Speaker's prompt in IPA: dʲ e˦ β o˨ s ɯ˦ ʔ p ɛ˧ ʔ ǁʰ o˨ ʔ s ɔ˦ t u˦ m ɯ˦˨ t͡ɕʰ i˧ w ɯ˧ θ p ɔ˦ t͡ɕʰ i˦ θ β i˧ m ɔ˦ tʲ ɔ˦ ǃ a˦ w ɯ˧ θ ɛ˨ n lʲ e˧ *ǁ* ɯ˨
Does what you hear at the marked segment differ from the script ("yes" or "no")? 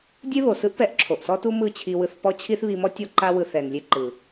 yes